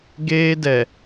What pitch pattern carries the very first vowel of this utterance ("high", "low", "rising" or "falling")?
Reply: high